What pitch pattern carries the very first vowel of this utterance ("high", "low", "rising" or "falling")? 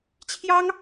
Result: high